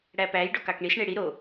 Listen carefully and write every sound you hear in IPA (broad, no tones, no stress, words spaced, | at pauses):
ɽæpæj ɖokɑkɳis ɳeɽi ɾo